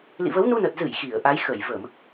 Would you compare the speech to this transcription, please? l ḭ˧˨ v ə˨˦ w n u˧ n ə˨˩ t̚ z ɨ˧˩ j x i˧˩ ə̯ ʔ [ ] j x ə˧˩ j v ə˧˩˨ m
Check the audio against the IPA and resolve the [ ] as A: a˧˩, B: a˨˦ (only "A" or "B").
B